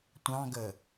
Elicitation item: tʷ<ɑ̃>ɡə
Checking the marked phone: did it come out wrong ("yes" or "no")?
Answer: no